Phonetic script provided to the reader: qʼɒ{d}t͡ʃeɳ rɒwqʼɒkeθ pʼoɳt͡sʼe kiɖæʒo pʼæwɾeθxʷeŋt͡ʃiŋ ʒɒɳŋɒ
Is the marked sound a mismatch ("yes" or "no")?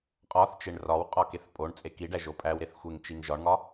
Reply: yes